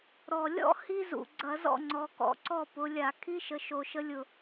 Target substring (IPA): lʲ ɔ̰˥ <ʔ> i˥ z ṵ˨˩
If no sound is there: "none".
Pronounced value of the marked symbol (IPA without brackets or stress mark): h